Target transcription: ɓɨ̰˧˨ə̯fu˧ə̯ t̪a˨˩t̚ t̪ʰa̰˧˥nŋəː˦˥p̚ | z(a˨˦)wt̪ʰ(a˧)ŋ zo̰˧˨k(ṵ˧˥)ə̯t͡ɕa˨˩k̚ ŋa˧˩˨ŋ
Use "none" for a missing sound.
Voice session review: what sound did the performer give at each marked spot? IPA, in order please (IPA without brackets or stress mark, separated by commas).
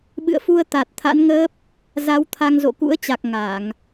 a˨˦, a˧, ṵ˧˥